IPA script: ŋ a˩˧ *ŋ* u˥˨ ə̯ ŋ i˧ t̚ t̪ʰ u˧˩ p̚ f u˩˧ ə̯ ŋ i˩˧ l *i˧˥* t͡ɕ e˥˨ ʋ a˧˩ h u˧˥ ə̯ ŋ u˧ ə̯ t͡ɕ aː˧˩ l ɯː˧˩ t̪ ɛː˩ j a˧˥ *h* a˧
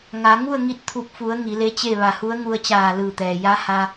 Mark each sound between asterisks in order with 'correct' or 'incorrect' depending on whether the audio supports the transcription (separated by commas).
correct, incorrect, correct